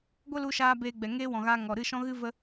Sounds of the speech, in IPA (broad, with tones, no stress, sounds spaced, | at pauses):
ɡʷ ə˦ l u˧ ʃ aː˧ b eː˧ ɡ͡b ɛ˨ ŋ eː˦ w ɔ̃˨ ɣ aː˧ ŋ ɔ˨ ɾ ɨ˦˨ ʃ ɔ̃˦ ɣ ɨ˦ v ə˦